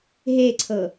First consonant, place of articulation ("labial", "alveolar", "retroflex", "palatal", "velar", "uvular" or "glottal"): glottal